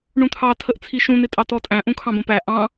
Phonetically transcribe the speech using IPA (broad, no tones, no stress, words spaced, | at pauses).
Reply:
ɳũt̪ʰɑ tʰəʔt͡sʰiʃũ n̪ɪtʼɑtɔtʼæ̃ ʔũkʰɑ̃bə̃pæ ʔɑ̃